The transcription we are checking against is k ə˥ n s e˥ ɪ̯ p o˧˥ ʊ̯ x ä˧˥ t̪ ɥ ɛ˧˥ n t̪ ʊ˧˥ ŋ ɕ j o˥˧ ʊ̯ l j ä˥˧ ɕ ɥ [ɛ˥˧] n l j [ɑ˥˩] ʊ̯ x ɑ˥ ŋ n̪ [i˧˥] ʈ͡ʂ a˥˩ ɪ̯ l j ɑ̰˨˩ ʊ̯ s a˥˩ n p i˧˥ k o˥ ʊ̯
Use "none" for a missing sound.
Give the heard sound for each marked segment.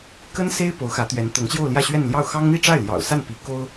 ɛ˥˧, ɑ˥˩, i˥˧

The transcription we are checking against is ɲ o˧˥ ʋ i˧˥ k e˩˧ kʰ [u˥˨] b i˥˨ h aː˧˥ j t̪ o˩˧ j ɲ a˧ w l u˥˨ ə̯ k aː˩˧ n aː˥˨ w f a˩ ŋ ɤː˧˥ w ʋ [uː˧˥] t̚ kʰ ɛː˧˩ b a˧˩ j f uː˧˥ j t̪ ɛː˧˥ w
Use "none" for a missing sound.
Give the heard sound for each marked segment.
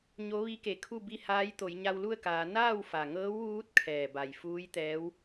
u˥˨, uː˧˥

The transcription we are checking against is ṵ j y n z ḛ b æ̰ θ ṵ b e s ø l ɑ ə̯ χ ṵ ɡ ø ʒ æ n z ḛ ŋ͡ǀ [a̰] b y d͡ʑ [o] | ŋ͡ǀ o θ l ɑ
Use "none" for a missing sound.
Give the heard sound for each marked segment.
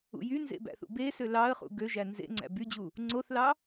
æ̰, u

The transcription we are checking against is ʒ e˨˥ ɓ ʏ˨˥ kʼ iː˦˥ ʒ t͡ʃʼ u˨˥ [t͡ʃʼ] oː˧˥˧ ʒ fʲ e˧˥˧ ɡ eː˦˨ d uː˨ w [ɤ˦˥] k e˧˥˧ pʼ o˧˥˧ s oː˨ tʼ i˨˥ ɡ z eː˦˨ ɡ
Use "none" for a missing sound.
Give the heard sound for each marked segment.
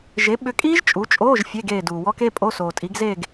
t͡ʃʼ, ɔ˦˥

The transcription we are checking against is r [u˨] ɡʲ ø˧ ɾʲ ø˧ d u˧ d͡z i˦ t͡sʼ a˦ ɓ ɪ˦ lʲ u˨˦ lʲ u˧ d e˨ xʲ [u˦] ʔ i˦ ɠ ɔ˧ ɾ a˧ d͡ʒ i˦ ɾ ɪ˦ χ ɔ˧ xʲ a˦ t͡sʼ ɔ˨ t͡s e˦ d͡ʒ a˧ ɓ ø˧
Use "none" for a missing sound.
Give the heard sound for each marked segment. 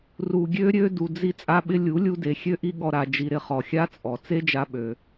u˨, ø˦

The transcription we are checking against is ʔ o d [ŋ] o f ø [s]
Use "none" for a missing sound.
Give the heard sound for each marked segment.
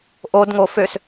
ŋ, s

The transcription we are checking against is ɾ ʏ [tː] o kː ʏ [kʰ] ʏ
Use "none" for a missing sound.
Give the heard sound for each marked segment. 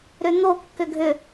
n̪, ɡʱ

